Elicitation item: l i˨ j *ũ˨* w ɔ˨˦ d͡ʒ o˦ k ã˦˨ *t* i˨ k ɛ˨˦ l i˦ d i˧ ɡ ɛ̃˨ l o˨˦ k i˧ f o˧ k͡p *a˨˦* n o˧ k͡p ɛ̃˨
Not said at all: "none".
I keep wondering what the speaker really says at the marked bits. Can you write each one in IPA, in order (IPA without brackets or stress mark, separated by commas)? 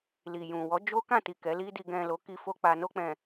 ũ˨, t, a˨